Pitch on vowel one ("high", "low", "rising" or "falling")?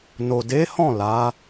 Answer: low